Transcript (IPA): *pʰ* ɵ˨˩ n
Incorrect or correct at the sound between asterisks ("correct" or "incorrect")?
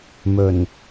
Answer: incorrect